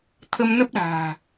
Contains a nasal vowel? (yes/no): no